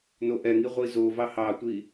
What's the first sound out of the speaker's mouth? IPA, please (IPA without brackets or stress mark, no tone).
n